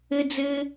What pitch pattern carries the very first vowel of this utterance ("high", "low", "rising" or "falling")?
high